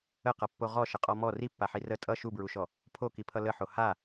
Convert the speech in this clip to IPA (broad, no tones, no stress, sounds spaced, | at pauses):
ə q ʌ pː o ʁ ɔ ʃ ə qʼ ɔ m ɔ r i pː a ħ i r ə tʼ ʌ ʃ u b ɹ u ʃ ɔ | pʰ o k i pʰ ʌ l ə ħ o h a